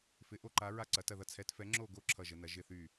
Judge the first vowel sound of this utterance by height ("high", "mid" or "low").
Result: high